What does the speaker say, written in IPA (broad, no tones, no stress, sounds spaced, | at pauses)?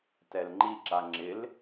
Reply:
t ɛ l ŋ͡ǃ i ǁ a ŋ͡ǁ ɪ l